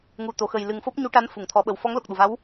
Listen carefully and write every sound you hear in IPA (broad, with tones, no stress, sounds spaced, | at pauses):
ŋ u˨˩ t̪ o˨˩˨ x ə˨˩ j l ɨ˨˩ ŋ f o˦˥ p̚ ɲ u˧˥ ʈ a˧˥ n f u˨˩˨ ŋ t̪ʰ ɔ˨˩˦ ɓ ə˨˩ w f ɔ˧˥ ŋ l o˨˩ k̚ ɗ u˨˩ v a˧˥ w